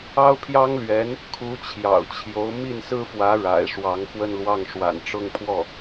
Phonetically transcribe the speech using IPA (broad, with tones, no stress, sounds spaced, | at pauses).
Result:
ɑ˥ ʊ̯ pʰ j ɑ˥ ŋ l ɥ ɛ˧˥ n | kʰ u˧˥ t͡ɕʰ j ɑ̰˨˩ ʊ̯ t͡ɕʰ j o˧˥ ʊ̯ m i˥˩ n s ɹ̩˥ f w ä˧˥ ɻ a̰˨˩ ɪ̯ ʂ w ɑ˧˥ ŋ x w ə˥˧ n l w ɑ˥˩ ŋ ʂ w a̰˨˩ n ʈ͡ʂ ʊ˥˧ ŋ pʰ w ɔ˥˩